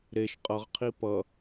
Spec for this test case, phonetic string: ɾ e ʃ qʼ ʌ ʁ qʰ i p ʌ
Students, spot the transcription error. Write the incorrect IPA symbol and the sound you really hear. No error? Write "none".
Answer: none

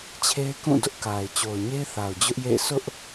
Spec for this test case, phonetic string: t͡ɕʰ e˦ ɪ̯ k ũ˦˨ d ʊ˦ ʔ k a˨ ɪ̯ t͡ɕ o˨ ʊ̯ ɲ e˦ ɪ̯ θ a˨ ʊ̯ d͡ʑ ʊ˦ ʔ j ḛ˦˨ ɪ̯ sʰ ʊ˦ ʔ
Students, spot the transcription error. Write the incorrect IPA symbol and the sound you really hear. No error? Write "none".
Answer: none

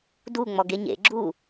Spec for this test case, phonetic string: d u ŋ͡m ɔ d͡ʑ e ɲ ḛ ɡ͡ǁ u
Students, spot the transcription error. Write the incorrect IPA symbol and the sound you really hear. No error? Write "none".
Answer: d͡ʑ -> ɡ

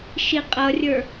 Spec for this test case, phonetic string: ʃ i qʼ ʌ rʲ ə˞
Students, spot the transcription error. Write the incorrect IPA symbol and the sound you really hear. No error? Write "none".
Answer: none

